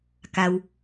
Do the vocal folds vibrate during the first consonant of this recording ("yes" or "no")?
no